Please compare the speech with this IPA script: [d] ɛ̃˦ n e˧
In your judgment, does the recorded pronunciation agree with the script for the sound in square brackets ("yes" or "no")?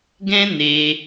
no